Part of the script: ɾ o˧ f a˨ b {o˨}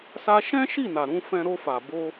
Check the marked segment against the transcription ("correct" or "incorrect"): incorrect